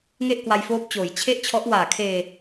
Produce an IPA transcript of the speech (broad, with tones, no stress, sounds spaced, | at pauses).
ŋ e˥˩ ʔ k w a˧ j f oː˦˥ p̚ t͡ɕ oː˩˦ j t͡ɕʰ e˥˩ ʔ t͡ɕʰ ɔ˦˥ ʔ w aː˨˩ kʰ eː˧